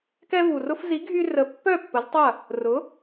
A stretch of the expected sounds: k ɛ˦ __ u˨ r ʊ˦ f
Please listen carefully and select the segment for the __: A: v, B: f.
A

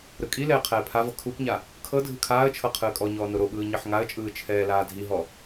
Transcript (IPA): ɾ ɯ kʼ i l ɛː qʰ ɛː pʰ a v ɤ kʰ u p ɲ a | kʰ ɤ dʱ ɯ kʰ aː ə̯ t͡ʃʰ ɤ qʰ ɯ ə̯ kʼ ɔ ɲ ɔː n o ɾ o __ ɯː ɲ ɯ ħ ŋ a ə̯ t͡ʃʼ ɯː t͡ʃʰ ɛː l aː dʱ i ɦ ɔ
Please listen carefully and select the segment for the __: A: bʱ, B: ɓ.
B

